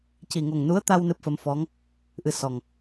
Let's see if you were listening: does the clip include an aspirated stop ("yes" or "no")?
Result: no